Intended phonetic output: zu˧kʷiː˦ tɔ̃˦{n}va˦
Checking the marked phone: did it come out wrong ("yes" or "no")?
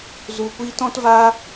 yes